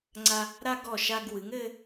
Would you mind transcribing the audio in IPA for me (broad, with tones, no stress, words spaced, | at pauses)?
ŋ͡ǀa˧ | ɾa˧ ɡɔ˧˩ʃa˧ɡ wɨ˩˧ŋɘ˧